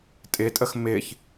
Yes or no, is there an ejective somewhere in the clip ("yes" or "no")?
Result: yes